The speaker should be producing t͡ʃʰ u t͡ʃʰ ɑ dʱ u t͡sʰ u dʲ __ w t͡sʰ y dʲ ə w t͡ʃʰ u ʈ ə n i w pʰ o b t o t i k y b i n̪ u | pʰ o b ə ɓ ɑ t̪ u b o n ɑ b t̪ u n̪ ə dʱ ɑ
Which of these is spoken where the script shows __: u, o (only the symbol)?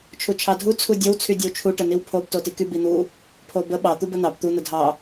o